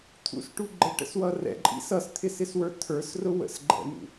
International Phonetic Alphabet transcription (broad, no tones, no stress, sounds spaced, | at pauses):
t̪ʰ ṵ s ʈ u ɡ͡ǃ ə ʈ ə̰ s w ʌ r ɛ̰ ǃʼ ḭ s ʌ s t̪ʰ ɪ s ɪ s w ə˞ t̪ʰ ə˞ s r ʊ w ə̰ s ɡ͡ǃ ɛ̰ n ṵ